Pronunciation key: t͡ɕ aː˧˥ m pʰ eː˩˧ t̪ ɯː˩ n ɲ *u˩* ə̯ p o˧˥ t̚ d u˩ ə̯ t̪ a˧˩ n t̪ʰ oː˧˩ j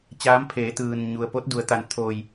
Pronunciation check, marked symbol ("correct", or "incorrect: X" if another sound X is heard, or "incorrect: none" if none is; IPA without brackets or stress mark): correct